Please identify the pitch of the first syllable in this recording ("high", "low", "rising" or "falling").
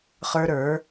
high